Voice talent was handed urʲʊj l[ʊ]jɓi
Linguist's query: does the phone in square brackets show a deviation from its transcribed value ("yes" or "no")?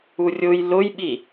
no